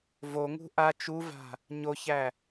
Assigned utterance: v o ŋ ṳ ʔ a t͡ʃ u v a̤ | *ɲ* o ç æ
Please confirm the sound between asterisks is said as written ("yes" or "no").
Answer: yes